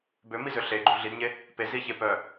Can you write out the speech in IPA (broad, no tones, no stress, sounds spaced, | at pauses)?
b ø m i z ø ɬ e ɡ͡ǃ u ɮ i d ɲ e | p e z i ç e p œ